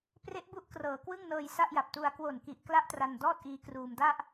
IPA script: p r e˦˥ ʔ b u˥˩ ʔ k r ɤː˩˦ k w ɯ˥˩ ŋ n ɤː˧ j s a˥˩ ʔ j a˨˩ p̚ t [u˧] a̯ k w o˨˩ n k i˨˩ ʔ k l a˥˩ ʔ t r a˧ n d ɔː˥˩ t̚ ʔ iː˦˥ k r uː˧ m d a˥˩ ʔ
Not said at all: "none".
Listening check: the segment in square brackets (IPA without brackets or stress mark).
u˧